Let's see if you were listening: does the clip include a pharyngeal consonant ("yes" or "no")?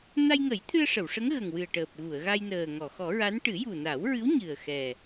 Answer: no